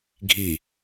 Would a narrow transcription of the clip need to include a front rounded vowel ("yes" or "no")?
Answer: no